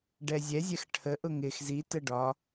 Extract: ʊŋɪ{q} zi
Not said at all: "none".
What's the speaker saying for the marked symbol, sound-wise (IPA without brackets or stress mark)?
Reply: x